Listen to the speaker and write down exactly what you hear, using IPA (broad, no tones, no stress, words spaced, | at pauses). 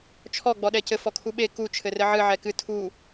t͡ʃʰɔ ɡ͡bɔɗɛcɘ fɔkʰuɓe ku t͡ʃʰɘrɘʕɨ ʕɛkɨ tʰu